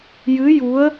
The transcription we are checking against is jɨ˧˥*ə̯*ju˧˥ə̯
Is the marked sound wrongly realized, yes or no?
yes